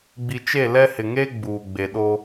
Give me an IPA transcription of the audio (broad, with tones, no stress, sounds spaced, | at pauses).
ɡ͡b i˨ t͡ʃ e˦˨ l ɛ˦ h ɪ˨ ŋ e˦ ɡ͡b uː˨ ɡ͡b e˨ ɗ o˦